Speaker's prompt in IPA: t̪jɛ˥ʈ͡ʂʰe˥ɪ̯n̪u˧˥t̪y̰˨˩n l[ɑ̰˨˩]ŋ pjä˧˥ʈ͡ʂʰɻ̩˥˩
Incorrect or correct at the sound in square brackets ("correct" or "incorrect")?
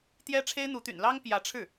incorrect